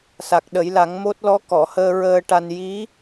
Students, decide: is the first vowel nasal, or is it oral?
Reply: oral